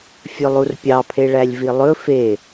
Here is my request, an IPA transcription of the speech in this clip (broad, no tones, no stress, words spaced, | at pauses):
fʲɵlˠurpʲɑpʰe ɭælʲvilˠɵ fe